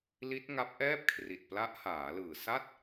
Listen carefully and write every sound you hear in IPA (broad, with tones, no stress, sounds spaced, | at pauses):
l i˦˥ t̚ ŋ a˦˥ p̚ ʔ ɛː˥˩ p̚ kʰ r i˨˩ t̚ p l a˦˥ ʔ h aː˩˦ l ɯː˨˩ s a˥˩ t̚